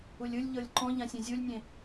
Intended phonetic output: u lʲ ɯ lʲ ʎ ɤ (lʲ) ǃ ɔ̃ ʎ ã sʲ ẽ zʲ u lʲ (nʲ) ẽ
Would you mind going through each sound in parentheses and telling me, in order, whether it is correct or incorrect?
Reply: correct, correct

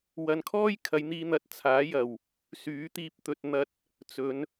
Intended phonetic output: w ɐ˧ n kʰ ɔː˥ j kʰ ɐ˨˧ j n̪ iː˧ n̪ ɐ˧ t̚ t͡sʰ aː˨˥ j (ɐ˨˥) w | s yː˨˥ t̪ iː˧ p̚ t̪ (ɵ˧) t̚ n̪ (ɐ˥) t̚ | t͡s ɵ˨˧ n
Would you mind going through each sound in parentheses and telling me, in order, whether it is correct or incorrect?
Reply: incorrect: ɐ˨˩, correct, incorrect: ɐ˧

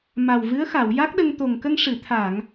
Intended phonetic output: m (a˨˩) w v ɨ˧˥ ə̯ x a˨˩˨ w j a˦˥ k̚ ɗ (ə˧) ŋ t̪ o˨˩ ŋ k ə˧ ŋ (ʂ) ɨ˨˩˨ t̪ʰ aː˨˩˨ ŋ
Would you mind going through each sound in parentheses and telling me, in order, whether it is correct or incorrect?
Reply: correct, correct, correct

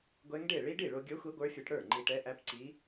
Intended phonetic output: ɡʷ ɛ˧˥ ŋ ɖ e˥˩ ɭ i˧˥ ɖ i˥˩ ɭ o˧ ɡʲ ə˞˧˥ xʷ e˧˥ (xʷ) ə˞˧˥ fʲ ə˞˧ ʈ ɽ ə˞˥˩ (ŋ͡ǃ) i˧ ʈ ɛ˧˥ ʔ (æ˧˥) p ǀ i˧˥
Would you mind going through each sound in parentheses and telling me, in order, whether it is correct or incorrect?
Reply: incorrect: ɡʷ, correct, correct

